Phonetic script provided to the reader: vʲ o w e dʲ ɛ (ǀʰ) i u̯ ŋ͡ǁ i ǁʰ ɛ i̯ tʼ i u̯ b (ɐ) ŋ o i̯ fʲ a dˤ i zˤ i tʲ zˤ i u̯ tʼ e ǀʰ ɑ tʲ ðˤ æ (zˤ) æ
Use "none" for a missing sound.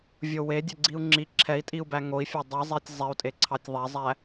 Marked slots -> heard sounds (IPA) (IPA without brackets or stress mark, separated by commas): ɡ͡ǀ, æ, zˤ